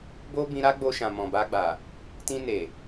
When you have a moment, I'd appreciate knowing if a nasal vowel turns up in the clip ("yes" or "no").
yes